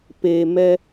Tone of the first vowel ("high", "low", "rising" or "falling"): low